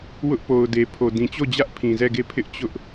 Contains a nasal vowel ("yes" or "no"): yes